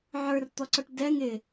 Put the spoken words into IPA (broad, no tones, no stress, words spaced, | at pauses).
ʕə˞rt̪ɔǀɔʈ dɛŋ ɪ